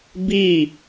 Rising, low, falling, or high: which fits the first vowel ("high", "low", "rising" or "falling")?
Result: falling